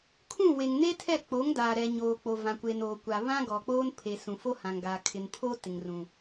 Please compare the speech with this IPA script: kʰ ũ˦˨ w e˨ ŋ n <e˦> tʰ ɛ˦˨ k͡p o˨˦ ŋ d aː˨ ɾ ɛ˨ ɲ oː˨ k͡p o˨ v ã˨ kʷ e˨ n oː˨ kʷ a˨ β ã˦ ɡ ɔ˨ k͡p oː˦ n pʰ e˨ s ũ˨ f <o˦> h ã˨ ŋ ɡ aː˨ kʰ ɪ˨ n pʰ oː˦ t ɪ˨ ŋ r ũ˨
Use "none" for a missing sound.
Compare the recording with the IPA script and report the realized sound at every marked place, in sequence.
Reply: e˦, o˦

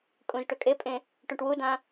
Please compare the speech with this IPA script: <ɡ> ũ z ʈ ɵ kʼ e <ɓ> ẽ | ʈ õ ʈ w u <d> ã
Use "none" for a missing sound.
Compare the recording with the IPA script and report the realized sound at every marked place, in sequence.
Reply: kʼ, pʼ, d

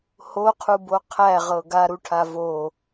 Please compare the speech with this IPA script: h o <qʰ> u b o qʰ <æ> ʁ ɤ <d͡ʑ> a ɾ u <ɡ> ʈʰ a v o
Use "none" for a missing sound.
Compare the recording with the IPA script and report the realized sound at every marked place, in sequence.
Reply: qʰ, æ, ɡ, none

